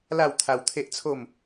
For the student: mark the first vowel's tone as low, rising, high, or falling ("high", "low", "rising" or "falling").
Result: falling